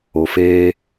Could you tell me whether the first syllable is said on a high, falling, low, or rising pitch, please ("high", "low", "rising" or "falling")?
low